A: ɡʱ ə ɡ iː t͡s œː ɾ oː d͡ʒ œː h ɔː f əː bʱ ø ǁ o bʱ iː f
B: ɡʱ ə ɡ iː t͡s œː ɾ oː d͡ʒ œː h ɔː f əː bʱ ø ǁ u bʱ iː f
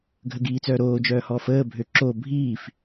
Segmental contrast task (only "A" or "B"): A